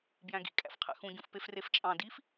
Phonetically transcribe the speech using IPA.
b j æ̃ ɡ ḭ kʼ æ̰ f qʰ æ̰ x ũ ɟ ũ f p e f r e f t͡ʃʼ ɑ̃ d i f

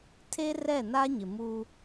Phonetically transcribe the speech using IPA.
tʰ e˦ r ɛ˦˨ n a˦ ɲ ɪ˨ m u˦

